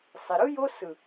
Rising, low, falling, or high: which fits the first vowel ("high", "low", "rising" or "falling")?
low